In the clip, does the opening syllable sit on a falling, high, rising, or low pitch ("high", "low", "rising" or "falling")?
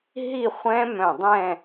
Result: falling